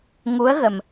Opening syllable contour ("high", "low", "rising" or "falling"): rising